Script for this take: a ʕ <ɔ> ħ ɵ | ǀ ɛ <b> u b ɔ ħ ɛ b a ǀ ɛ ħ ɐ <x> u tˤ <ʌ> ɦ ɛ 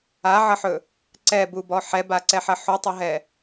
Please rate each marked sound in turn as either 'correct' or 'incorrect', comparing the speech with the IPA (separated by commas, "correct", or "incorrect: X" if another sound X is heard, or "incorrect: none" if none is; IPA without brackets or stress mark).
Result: incorrect: ʌ, correct, incorrect: ħ, correct